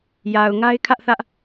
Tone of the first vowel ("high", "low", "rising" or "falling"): low